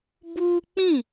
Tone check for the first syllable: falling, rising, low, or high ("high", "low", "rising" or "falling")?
high